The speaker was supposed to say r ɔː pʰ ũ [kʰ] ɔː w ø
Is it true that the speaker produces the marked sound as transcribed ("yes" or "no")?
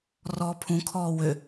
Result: yes